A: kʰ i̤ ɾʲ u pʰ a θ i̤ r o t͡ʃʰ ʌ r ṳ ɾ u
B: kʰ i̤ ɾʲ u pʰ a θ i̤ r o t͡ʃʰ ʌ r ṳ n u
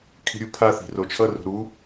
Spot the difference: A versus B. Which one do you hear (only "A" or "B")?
A